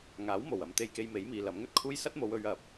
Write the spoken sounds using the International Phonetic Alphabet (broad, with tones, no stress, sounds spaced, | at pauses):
ŋ aː˨˥ w m o˨˩ w ɐ˨ m t̪ e˧ j k e˧ j m e˨˥ j m iː˨ l ɐ˨˥ m ŋ ɵ˧ t̚ kʰ uː˥ j s ɐ˥ t̚ m o˨˧ w ɵ˨˧ ɥ ɐ˨˥ p̚